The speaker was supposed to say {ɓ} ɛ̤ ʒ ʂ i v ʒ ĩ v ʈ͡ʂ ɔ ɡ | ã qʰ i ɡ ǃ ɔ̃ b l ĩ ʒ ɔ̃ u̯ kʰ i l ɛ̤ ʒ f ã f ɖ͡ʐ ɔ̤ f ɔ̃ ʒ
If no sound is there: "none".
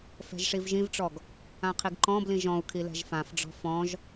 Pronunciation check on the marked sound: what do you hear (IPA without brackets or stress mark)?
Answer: f